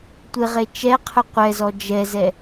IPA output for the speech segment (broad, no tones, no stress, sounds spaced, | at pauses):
tʷ ɪ ʁ e t͡ʃ ɛ qʰ ʊ qʷ ɛ z ɔ d͡ʒ ɛ z ɛ